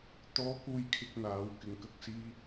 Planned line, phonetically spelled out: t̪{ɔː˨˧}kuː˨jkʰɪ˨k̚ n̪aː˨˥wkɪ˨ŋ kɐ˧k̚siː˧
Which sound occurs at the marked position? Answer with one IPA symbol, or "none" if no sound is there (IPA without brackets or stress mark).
ɔː˨˧